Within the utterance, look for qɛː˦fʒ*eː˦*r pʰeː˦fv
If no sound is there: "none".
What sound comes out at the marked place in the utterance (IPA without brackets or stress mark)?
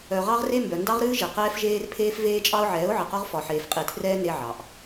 eː˦